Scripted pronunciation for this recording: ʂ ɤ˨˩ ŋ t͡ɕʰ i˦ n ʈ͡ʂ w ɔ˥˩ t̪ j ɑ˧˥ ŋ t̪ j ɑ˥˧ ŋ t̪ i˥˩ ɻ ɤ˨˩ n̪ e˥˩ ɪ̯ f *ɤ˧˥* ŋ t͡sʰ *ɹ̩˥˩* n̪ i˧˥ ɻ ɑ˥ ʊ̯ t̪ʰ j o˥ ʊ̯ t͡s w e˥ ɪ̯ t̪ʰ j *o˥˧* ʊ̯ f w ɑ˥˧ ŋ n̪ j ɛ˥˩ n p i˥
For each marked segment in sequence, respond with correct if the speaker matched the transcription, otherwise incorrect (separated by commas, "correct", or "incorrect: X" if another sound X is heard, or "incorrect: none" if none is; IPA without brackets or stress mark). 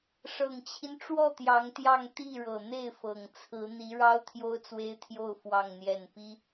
incorrect: ɤ˨˩, incorrect: ɹ̩˧˥, correct